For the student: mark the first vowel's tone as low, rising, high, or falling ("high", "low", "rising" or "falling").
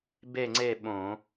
falling